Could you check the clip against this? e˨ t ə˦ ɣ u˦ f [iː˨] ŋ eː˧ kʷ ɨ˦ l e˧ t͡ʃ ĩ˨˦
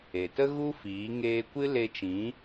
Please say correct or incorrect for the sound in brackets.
incorrect: iː˨˦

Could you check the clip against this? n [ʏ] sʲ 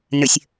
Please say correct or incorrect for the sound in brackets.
correct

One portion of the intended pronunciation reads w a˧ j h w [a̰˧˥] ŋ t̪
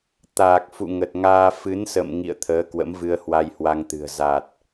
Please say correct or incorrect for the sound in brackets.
incorrect: a˧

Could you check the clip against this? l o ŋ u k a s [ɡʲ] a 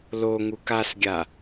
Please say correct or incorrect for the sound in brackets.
correct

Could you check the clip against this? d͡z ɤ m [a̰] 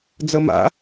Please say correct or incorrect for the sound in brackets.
correct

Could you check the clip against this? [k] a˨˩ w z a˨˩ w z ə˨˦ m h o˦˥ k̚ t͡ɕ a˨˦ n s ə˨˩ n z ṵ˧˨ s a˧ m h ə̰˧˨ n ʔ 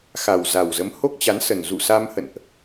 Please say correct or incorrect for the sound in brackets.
incorrect: x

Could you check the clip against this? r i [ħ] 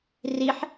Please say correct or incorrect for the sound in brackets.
correct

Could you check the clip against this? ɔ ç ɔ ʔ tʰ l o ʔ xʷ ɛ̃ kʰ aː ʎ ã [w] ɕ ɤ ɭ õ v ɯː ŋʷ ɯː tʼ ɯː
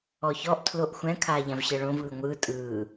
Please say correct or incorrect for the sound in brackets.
incorrect: v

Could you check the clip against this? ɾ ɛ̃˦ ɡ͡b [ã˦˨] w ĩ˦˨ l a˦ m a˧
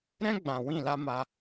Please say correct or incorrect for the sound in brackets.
incorrect: ã˨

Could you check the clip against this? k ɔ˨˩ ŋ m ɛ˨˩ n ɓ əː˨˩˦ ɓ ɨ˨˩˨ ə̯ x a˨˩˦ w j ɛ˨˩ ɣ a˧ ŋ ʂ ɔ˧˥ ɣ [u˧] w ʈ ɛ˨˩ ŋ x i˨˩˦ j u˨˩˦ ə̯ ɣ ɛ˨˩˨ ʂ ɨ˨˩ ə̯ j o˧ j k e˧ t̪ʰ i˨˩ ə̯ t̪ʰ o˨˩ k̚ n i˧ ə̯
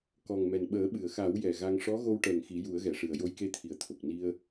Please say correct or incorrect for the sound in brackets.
incorrect: o˧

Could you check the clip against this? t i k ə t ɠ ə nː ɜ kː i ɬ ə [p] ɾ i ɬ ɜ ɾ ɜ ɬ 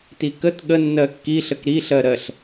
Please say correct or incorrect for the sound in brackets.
incorrect: k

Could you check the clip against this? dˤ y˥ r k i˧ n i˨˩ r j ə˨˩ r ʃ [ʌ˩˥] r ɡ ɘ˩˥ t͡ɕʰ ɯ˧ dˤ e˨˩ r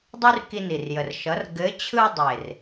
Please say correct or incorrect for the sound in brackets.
correct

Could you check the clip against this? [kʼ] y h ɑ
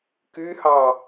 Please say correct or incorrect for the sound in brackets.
incorrect: k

